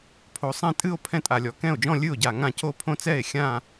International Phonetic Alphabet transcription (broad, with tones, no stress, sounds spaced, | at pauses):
pʰ o˨˩ sˤ ɛ̃˥˩ tʼ ɨ˥˧ o̯ pʰ ɛ̃˥˩ tʼ a˨˩ lʲ ɔ˨˩ k ɛ̃˥˩ o̯ d͡ʒ ɔ̃˥˧ lʲ ɨ˥˩ o̯ ɟ a˨˩ ŋ ã˥˩ c o˥˧ pʰ õ˥˧ t͡s ɛ˥˩ e̯ xʲ ã˥˧